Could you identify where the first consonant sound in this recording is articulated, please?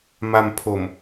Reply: labial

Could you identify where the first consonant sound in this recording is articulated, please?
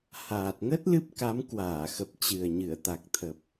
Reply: glottal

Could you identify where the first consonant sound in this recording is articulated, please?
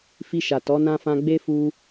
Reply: labial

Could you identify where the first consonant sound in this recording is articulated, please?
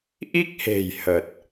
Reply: glottal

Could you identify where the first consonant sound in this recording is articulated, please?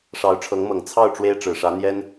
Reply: retroflex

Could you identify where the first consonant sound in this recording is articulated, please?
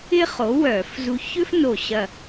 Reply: uvular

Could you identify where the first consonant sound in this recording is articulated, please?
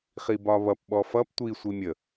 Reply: uvular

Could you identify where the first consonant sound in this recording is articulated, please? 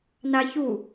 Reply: alveolar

